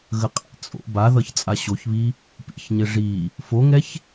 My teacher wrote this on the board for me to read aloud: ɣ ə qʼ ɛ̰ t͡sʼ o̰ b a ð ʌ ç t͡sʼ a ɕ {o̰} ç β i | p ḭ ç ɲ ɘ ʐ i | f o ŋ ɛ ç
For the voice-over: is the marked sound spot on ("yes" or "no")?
no